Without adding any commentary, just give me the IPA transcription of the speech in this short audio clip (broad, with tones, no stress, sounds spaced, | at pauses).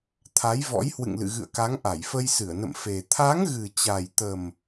t̪ʰ a˨˦ j v ɔ̰˧˥ j h w ɨ̰˧˨ ŋ l ɨ̰˧˨ ɣ ɨ̰˧˨ ə̯ k a˨˦ ŋ ʔ a˧˩ j f ə˧ j s ɨ˧˩ ə̯ n ə̰˧˨ m f e˨˩ t̪ʰ a˨˦ ŋ ɣ ɨ˨˩ t͡ɕ a˨˩ j t̪ ə˨˩ m